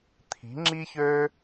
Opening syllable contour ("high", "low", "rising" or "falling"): rising